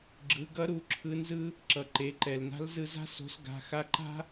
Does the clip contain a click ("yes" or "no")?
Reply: yes